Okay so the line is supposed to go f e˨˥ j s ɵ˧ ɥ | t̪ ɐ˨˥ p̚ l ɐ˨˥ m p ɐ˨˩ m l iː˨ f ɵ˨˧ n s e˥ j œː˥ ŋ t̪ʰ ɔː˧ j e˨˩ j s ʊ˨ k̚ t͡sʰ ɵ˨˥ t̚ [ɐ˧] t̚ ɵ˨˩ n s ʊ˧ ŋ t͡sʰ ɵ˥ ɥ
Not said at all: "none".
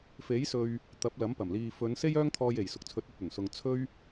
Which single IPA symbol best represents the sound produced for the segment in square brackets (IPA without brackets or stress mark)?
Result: ɐ˧